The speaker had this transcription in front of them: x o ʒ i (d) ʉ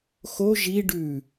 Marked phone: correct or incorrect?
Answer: incorrect